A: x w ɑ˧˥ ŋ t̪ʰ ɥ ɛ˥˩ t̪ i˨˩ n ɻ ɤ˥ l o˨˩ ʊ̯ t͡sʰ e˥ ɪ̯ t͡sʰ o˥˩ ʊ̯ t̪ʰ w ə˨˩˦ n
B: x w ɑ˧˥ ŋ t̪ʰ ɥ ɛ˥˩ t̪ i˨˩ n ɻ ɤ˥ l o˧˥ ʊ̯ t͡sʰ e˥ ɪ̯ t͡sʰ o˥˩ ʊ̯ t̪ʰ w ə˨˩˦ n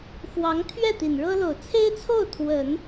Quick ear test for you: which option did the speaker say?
A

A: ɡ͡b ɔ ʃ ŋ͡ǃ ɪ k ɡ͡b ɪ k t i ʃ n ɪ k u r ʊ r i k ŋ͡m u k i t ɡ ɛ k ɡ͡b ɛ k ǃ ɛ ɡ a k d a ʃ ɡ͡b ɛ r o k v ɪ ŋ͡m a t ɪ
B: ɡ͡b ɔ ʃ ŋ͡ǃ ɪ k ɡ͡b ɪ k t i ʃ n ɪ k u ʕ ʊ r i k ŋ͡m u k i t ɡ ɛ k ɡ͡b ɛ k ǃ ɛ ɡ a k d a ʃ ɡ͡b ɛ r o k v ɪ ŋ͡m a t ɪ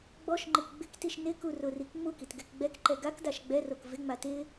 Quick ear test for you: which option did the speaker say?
A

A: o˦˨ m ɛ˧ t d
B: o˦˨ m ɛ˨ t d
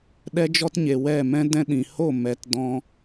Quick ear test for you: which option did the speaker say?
A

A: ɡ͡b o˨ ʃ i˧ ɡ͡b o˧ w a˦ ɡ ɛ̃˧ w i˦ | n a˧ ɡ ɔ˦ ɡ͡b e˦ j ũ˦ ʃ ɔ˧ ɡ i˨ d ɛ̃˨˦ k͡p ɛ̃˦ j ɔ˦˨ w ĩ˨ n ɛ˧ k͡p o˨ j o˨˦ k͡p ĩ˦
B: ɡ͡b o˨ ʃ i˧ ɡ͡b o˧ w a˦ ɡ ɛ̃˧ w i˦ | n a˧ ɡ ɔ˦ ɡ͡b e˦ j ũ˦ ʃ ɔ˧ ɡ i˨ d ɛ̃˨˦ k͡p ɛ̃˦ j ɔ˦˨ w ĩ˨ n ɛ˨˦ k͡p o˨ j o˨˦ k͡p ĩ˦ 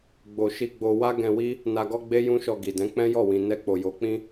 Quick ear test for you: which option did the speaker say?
A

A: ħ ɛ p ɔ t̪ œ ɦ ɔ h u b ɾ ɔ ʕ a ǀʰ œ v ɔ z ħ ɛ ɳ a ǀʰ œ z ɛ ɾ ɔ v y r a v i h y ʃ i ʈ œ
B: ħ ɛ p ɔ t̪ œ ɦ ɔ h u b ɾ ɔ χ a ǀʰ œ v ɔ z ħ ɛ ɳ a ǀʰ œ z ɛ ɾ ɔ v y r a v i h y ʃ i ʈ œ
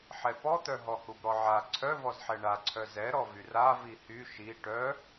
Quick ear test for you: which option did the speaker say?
A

